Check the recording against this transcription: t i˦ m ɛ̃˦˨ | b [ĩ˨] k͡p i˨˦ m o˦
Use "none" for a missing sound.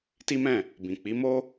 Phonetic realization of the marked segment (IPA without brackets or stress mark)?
ĩ˨